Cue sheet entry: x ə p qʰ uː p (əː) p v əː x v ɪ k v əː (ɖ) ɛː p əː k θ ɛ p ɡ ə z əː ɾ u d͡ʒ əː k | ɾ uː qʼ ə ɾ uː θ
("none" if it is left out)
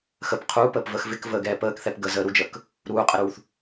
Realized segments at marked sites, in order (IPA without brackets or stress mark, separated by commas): əː, ɡ